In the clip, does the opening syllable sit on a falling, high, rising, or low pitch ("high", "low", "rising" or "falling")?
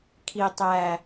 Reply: low